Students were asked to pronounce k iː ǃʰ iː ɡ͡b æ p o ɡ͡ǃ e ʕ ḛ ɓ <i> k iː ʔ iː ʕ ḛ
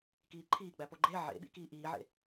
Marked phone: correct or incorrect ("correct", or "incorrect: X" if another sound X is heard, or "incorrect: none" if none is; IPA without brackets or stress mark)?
incorrect: ḭ